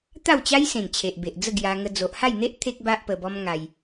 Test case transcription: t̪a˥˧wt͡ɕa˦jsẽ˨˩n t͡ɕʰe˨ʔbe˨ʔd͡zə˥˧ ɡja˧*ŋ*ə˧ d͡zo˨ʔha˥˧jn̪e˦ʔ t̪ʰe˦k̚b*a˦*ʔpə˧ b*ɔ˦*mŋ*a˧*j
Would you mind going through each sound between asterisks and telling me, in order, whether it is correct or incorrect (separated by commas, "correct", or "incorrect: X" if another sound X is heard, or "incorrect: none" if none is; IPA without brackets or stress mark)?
correct, correct, correct, correct